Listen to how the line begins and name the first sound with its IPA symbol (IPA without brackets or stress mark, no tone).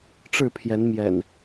ʈ͡ʂ